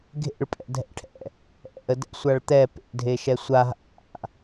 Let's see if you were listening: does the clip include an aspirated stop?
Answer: yes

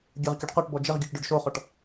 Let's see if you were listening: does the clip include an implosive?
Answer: no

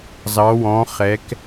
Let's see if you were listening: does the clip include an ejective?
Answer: no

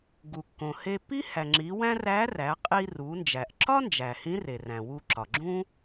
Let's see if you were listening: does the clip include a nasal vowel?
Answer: yes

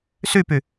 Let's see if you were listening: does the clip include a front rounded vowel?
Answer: yes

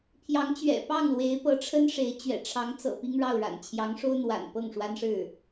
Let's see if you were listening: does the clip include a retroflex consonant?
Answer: yes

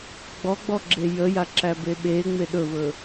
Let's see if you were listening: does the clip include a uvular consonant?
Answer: no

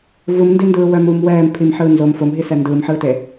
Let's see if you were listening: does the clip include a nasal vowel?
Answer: no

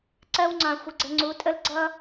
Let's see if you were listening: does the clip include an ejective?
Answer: yes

